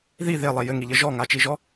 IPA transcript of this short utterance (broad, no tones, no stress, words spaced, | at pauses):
ði ðelˠe jɘŋiʎɘ ʒɔŋat͡ʃiʒɔ